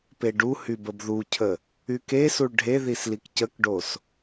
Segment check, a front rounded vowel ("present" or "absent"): present